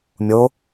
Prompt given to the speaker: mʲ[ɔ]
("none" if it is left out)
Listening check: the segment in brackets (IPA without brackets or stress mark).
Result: o